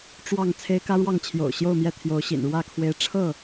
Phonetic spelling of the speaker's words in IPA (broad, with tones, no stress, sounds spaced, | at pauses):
ʈ͡ʂ w ɑ˥˨ ŋ t͡sʰ e˦ ɪ̯ k ä˦ ɻ w ɑ˥˨ ŋ t͡ɕʰ j o̰˨˩ ʊ̯ ɕ j o˥˨ ʊ̯ m j ɛ˥˨ t̪ʰ j o˨˦ ʊ̯ ɕ ḭ˨˩ n ɻ w ä˥˨ kʰ w e˦ ɪ̯ ʈ͡ʂʰ ɤ˥˨